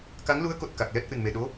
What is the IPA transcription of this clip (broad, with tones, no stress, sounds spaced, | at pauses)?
k a˧˥ ŋ l u˧˥ ə̯ k o˨˩ t̚ k a˨˩ k̚ l ɛ˦˥ t̚ ʔ ɨ˨˩ n m e˨˩ ɗ o˧˥